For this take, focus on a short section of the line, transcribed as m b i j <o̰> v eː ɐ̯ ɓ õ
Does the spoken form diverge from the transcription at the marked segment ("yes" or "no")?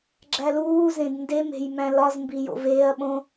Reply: no